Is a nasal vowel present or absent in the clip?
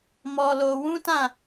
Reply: present